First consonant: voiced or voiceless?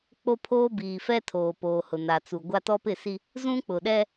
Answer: voiceless